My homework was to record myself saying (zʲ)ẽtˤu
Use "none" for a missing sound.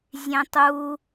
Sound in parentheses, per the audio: zʲ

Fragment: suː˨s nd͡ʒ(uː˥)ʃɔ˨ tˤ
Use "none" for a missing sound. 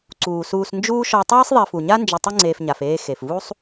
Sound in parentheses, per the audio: uː˦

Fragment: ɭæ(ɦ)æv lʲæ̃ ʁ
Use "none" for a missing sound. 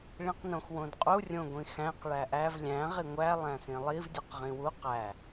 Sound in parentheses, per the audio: ʔ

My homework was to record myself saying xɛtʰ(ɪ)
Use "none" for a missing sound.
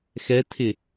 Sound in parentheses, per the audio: ɪ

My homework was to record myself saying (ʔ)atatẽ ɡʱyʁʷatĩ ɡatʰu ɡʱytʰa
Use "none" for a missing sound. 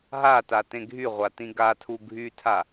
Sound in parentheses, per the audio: ɦ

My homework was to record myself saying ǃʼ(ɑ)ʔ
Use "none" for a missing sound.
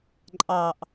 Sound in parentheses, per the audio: ɑ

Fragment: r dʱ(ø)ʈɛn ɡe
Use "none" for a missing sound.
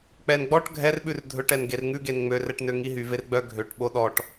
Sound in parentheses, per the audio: ɵ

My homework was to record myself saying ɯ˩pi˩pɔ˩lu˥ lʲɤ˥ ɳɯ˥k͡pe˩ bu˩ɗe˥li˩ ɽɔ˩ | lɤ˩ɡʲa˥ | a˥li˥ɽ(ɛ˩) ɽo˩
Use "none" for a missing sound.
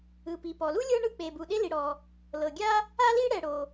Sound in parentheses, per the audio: ɛ˩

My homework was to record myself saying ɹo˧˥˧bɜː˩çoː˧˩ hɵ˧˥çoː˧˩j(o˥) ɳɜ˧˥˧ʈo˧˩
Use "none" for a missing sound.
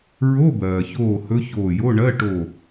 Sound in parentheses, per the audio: o˧˥˧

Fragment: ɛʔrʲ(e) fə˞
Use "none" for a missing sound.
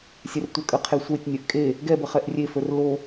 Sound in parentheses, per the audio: e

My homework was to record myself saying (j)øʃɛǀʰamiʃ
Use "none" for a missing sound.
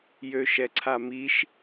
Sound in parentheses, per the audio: j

